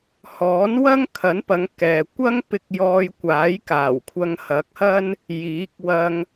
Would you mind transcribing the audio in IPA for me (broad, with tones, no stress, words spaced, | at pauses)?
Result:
hɔː˨˥nwɐ˥ŋkʰɐ˨˥npɐ˨˧ŋ kɛː˨ kʷɐ˥ŋ pɪ˧k̚jɔː˧jkʷaː˨˥j kaː˨˩wkʷʰɐ˧ŋ hɐ˨˥k̚hɐ˥n | jiː˨˥k̚wɐ˧ŋ